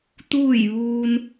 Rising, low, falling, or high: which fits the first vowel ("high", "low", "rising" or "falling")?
falling